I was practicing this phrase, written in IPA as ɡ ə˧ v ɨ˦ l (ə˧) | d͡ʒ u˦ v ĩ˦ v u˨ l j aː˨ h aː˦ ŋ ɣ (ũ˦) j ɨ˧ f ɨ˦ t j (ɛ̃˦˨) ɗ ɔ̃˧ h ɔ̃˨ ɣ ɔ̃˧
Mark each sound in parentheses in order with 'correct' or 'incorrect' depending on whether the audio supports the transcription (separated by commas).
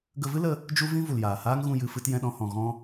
correct, incorrect, incorrect